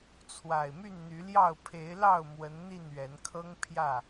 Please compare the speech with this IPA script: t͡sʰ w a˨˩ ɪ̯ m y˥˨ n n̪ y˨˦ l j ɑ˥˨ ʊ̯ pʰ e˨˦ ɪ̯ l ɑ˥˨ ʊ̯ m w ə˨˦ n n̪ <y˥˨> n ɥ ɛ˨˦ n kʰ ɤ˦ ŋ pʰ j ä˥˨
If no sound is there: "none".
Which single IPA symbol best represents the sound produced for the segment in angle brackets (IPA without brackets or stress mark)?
i˥˨